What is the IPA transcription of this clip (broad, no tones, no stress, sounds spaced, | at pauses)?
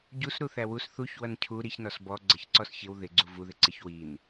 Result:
ɟ u s ɾ u θ æ w u s θ u ç w ʌ n cʰ u ɾ i ç n ɔ s b ɔ ɡ͡ǀ ʌ ç ǀ ɔ s ç ɪ w ð ɪ ɡ͡ǀ u v u ð ɪ ǀ ɪ ç w i n